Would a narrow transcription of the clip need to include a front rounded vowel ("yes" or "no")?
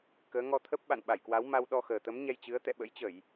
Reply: no